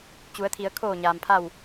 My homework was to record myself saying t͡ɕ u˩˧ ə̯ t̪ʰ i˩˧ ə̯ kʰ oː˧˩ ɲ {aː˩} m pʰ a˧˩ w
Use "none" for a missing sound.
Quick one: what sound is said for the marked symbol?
aː˩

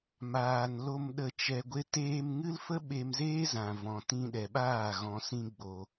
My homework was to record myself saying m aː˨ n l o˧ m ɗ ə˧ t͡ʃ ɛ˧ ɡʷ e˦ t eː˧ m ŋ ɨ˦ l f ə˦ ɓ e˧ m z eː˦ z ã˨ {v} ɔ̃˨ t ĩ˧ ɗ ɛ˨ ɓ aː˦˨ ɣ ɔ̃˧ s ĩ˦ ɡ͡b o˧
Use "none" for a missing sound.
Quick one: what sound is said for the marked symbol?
v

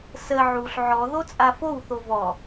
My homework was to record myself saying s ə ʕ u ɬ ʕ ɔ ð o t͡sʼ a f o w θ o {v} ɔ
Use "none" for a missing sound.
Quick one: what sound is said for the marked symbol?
v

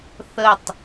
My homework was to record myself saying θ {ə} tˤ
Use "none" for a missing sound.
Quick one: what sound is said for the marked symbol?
ə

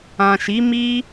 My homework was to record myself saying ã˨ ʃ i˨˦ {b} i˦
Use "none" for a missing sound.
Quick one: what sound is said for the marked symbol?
m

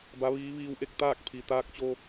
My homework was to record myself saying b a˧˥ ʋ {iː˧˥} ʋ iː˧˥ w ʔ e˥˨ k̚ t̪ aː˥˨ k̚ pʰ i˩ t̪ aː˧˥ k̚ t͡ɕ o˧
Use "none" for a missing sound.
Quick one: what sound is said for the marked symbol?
iː˧˥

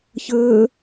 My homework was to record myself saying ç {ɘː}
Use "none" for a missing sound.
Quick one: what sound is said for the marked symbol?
ɘː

